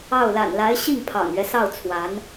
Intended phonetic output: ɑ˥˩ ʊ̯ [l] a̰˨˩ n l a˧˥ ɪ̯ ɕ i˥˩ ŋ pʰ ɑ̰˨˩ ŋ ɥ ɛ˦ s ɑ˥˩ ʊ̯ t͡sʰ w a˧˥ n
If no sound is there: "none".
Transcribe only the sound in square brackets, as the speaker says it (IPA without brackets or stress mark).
l